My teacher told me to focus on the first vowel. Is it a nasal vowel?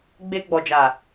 no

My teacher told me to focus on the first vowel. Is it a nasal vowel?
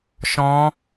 yes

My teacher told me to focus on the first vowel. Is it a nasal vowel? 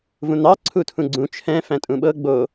yes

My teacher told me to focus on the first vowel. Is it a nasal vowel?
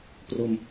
no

